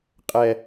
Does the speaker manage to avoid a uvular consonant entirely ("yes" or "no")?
no